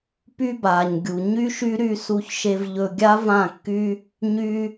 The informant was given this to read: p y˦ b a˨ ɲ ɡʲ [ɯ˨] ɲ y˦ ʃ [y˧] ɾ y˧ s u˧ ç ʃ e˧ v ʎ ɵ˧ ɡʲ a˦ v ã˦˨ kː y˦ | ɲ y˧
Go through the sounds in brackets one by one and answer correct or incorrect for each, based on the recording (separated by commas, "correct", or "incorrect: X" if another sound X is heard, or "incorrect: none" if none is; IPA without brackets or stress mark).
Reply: incorrect: u˨, incorrect: y˦